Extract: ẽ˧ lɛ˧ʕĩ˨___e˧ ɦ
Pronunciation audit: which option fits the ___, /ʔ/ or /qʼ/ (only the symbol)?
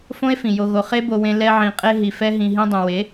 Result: qʼ